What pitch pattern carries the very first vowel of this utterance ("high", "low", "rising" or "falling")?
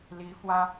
rising